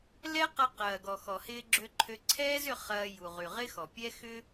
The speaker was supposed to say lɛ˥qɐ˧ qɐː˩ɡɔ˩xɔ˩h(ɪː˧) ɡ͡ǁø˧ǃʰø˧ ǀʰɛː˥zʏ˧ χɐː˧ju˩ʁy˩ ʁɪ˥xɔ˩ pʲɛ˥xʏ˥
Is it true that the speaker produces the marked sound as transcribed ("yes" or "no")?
yes